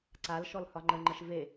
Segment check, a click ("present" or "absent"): present